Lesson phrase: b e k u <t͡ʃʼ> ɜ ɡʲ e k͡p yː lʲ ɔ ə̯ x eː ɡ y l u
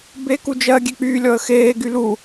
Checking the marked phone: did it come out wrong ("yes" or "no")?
yes